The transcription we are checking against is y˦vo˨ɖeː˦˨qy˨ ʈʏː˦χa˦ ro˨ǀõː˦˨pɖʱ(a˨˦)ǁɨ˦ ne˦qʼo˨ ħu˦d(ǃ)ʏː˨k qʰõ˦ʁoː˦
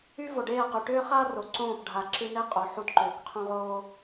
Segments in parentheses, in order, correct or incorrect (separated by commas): incorrect, correct